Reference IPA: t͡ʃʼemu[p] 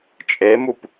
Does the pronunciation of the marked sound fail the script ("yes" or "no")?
no